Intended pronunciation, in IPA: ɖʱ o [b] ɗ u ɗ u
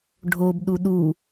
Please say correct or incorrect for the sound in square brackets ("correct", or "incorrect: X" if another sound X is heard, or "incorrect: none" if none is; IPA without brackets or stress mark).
correct